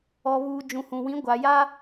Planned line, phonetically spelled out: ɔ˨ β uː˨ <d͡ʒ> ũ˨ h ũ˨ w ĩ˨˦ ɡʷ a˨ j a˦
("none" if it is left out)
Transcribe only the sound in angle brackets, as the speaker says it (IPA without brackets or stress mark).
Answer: d͡ʒ